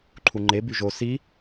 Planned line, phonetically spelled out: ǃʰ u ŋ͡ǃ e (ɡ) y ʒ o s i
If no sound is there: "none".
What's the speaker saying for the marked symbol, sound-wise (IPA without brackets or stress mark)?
b